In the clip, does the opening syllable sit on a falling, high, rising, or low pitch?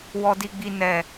low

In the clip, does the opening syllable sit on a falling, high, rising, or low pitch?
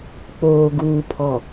low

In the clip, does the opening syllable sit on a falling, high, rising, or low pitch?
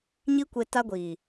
high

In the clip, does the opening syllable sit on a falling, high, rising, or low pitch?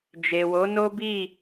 low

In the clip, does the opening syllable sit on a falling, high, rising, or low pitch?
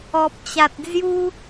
low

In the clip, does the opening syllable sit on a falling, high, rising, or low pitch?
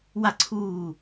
falling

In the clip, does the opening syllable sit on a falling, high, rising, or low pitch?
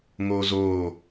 high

